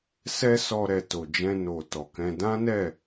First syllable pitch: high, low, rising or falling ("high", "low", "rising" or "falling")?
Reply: high